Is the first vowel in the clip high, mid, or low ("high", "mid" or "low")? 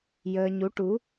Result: mid